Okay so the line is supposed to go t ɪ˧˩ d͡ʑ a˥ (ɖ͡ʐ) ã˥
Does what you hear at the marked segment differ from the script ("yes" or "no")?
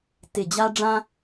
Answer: no